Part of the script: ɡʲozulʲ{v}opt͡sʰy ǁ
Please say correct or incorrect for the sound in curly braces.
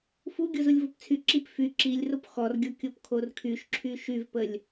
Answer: correct